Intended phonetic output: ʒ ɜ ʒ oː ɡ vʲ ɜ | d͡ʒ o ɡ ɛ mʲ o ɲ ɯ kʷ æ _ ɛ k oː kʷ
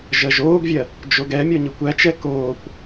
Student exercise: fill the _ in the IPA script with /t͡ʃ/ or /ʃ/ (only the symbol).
t͡ʃ